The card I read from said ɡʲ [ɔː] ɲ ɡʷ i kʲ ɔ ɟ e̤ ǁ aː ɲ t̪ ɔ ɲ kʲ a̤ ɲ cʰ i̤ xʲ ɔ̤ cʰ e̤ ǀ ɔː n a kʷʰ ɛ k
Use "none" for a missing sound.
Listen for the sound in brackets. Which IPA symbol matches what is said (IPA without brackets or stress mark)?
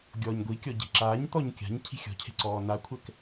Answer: ɔː